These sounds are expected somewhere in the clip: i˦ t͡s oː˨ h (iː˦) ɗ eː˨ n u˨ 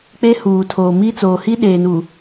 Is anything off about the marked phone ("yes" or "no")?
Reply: yes